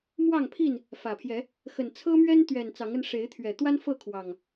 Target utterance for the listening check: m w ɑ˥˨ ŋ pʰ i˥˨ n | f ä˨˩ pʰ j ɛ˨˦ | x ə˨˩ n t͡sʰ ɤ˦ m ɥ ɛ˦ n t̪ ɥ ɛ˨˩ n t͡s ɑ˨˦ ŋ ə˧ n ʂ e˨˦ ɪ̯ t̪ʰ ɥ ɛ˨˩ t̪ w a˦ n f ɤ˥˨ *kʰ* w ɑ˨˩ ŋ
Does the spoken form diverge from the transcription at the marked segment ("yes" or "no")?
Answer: no